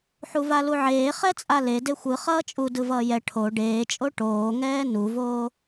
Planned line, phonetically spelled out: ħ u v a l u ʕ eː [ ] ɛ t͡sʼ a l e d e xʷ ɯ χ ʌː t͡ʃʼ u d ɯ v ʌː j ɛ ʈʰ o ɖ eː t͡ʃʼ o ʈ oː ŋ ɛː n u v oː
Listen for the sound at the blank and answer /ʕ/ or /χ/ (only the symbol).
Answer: χ